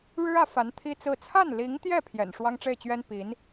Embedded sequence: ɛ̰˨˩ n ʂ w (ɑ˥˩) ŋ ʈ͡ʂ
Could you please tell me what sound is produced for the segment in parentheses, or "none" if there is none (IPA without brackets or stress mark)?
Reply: ɑ˥